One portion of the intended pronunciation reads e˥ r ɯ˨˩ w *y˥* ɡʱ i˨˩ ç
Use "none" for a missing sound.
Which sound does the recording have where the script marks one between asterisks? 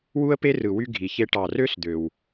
y˥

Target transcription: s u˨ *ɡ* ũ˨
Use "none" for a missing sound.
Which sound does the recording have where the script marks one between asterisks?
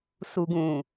ɡ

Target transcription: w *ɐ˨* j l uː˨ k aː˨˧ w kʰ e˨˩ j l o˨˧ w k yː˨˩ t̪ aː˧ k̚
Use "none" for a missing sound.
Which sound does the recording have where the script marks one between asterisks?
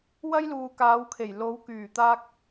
ɐ˥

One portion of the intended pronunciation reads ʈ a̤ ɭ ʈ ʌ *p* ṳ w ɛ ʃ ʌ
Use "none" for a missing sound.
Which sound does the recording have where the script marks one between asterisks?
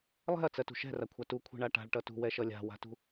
t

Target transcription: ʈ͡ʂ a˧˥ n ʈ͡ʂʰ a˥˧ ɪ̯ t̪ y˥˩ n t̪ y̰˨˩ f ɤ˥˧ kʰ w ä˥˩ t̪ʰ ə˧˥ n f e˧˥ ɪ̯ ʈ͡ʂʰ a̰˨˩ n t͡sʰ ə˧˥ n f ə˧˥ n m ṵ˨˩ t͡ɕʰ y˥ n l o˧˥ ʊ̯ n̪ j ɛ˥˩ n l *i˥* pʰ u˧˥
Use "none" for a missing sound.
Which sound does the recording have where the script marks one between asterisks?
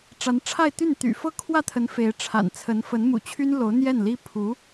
i˥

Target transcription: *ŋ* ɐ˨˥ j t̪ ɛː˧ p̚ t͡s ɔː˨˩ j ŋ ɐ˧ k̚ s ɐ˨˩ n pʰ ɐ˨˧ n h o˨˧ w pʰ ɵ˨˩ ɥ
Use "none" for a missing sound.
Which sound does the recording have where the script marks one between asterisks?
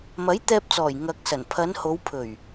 m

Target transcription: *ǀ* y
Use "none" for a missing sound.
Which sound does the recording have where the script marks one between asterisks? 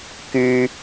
k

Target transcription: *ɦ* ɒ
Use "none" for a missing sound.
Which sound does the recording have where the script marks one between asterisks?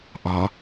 ʔ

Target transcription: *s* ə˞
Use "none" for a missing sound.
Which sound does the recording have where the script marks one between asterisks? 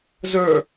z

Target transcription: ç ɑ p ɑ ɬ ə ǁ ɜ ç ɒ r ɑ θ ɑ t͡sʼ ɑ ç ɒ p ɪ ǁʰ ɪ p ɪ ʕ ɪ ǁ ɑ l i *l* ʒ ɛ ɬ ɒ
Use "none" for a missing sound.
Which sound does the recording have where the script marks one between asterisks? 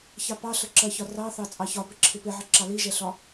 none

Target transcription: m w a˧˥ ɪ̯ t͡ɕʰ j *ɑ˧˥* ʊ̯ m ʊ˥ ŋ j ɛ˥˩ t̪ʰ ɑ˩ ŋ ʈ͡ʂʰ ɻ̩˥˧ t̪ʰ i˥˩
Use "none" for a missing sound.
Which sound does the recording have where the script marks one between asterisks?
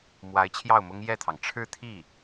ɑ˥˩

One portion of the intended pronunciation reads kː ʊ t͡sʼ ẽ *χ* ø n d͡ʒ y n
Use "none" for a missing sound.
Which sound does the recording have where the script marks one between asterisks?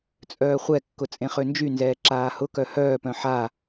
χ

